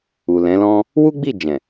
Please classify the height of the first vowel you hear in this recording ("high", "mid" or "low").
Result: high